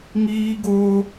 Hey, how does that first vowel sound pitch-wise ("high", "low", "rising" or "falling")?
high